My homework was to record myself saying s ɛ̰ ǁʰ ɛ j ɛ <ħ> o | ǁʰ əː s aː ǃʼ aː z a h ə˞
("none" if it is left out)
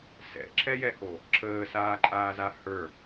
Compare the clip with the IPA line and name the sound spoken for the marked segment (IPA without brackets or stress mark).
h